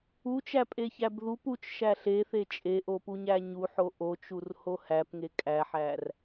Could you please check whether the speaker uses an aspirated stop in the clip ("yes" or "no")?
no